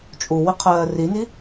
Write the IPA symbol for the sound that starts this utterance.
t͡ʃʼ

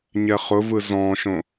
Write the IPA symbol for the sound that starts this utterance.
ɲ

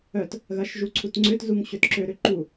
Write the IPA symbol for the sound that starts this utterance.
œ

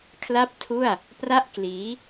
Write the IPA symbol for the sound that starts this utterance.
kʰ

